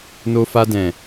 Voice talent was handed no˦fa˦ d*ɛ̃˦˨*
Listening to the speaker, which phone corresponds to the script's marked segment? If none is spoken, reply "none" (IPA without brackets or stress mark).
ɛ̃˦˨